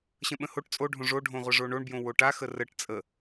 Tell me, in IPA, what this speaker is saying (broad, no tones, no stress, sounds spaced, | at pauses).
ɕ ə̃ ɓ ə̃ h o ʈ t͡sʼ o ɖʱ õ ʐ o ɖʱ õ ʁʷ ə ʐ o ɳ o ɳ b j õ w o ʈ a x ə r ə ʈ t͡sʼ ə